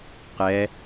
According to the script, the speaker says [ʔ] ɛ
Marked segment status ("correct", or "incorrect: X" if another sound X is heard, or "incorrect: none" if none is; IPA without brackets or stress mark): incorrect: q